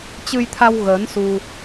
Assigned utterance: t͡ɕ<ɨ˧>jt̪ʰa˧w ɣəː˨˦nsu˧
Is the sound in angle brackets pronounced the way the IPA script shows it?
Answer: yes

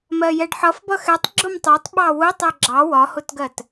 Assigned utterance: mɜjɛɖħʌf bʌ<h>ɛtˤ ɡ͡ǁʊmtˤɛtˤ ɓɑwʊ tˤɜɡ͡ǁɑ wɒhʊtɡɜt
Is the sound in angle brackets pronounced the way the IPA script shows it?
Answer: no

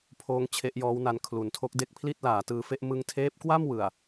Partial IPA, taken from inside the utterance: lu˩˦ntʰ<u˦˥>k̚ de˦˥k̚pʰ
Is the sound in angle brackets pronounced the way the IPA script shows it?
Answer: no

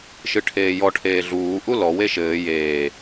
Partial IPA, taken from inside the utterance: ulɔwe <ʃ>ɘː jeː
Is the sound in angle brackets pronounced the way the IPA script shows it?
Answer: yes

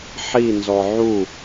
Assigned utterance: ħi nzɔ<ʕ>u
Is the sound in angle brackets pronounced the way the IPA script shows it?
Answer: yes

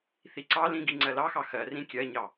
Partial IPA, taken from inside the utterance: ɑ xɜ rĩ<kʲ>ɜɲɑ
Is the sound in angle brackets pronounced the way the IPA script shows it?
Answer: yes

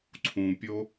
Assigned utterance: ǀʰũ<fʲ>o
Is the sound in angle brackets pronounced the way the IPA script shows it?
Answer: no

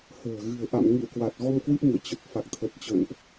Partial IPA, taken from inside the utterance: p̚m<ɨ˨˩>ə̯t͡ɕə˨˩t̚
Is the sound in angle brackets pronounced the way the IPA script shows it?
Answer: no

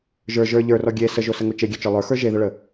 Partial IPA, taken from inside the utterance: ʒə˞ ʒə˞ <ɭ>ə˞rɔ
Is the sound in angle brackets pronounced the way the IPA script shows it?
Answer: no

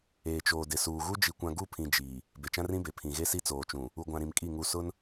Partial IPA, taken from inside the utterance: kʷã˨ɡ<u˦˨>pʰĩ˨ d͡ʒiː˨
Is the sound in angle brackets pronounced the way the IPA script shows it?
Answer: yes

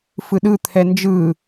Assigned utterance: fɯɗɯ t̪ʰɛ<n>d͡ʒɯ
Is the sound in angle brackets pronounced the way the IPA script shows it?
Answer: yes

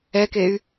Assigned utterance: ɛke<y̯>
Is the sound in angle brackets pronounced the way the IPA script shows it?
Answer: yes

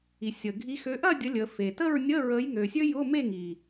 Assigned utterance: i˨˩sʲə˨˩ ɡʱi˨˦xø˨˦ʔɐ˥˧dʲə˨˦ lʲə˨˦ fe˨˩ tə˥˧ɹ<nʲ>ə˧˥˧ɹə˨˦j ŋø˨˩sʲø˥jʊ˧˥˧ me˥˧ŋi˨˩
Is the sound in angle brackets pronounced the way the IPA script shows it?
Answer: yes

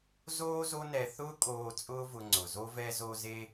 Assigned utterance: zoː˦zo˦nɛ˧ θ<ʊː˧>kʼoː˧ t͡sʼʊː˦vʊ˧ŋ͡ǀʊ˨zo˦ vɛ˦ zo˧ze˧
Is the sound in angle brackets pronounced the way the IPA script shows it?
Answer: no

